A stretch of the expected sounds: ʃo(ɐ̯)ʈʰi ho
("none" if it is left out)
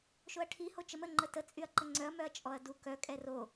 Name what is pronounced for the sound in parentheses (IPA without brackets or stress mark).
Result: ɐ̯